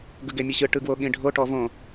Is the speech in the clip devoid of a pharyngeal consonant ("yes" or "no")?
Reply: yes